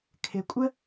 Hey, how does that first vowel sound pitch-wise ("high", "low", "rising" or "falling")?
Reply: low